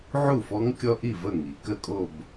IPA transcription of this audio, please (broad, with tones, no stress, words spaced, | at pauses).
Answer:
ʕu˥˩fɔ˦˥ŋ kʲɔ˦˥ʔi˥˩ və˥˩ŋi˩˧ kə˥˧kʼo˥˧b